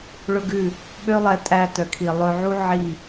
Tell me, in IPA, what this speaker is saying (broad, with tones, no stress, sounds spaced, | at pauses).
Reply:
ɭ ɵ˦ ɡ ʉ˦˨ | ɓ ø˦ lˠ ɛ˧ tʼ æ˧ t œ˨ kʰ i˨ lˠ ɵ˧ ʕ u˦ ʕ i˦˨